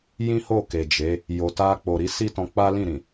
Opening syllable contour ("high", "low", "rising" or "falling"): high